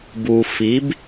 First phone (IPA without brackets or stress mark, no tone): b